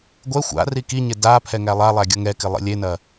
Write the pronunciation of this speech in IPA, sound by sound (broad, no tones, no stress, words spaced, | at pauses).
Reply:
ɡʷɛ xʷa̰ rikiɲɪ da pʰɛŋælˠalˠæ ɡʲʌŋɛkɪ lˠḭlʲenɐ